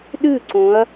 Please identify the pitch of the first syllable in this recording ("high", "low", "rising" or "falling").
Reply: falling